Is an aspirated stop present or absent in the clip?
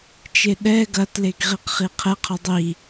present